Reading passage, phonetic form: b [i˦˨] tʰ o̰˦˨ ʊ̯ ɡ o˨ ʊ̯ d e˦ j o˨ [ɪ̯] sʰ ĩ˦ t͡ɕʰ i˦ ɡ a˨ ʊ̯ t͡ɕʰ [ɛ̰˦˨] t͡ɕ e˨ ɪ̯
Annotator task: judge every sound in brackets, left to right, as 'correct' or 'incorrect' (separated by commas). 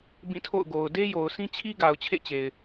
incorrect, incorrect, incorrect